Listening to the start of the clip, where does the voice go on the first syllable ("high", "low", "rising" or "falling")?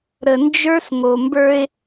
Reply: low